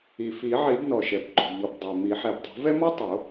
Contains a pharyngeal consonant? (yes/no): yes